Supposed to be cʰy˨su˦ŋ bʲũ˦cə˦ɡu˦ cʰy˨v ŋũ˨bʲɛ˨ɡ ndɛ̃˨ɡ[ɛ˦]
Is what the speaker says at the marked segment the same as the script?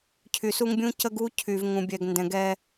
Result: yes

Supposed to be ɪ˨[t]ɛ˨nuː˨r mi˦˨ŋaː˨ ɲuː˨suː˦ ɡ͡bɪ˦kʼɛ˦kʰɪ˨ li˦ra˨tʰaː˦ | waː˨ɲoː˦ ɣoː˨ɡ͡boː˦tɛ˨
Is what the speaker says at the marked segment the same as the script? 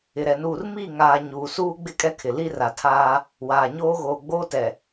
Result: no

